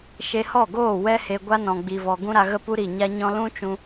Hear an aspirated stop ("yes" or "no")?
no